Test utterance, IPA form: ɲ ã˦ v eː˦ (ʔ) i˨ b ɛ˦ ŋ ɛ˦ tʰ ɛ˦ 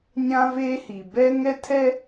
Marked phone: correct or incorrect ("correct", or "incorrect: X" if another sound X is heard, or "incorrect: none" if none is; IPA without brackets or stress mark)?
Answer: incorrect: h